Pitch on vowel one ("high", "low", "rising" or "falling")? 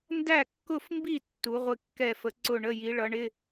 falling